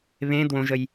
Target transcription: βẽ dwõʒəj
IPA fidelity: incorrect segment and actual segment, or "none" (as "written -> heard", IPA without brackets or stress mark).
none